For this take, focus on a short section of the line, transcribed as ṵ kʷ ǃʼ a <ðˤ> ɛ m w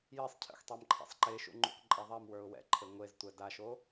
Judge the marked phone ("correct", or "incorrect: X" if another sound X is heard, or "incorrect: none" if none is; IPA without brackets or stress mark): correct